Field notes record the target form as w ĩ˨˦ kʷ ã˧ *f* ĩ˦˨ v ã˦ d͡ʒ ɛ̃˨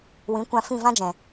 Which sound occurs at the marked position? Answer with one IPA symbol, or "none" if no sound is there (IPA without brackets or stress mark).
f